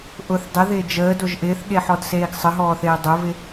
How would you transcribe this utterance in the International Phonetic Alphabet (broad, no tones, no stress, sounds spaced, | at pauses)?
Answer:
ʔ ʊ θ dˤ ɪ ð ɪː d͡ʒ əː d o ʒ ʔ ɪː θ ɠ e ħ ɔ d s eː ɡ sˤ ə ɦ ɔː θ eː dˤ ʊ v ɪ